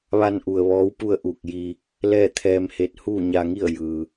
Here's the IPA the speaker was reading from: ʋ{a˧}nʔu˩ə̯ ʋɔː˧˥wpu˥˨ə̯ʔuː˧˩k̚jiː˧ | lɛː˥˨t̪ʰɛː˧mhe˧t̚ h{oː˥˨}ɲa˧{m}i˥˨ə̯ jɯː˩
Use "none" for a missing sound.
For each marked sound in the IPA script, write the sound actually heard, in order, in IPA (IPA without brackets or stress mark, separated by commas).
a˧, uː˥˨, ŋ